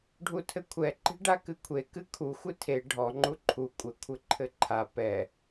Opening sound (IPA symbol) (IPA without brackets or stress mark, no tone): ɖʱ